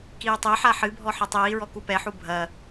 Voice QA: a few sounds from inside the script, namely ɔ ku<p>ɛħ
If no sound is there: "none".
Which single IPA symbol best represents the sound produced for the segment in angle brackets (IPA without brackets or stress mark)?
p